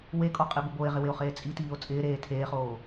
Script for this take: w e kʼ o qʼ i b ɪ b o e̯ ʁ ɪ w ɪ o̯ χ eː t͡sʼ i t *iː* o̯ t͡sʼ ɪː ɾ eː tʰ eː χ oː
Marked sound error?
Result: no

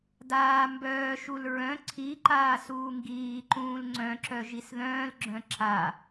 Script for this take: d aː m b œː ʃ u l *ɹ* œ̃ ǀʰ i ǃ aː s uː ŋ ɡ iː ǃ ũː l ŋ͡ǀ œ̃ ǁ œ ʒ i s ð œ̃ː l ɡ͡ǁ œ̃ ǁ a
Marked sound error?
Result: no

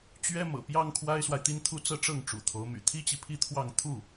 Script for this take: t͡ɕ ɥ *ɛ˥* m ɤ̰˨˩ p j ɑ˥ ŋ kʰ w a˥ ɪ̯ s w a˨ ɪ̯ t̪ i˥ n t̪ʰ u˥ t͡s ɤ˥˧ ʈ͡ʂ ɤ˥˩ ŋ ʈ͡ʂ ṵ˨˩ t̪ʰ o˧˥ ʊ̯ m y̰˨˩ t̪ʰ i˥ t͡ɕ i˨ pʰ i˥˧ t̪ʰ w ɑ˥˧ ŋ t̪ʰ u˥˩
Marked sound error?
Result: no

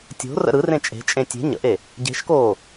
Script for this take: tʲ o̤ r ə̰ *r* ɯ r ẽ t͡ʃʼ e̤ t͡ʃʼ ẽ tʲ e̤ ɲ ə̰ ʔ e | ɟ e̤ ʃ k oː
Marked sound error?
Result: yes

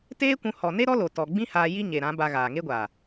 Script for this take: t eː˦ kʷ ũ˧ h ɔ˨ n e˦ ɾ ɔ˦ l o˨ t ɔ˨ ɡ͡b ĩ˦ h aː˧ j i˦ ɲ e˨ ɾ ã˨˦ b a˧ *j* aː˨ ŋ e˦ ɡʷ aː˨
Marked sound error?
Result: yes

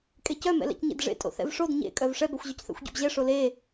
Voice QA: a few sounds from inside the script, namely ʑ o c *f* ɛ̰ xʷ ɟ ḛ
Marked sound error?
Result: yes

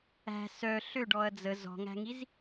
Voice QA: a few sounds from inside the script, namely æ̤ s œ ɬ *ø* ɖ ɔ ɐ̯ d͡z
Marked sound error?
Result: no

